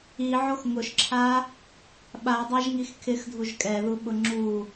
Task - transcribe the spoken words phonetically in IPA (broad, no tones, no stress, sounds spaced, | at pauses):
i ʕ o x ŋ ʊ ʃ ǁʰ a | ɓ a dˤ a ʒ ŋ i x kʰ ɪ x dʱ u ʒ kʼ ɛ ð u ɓ ʊ ŋ͡ǁ u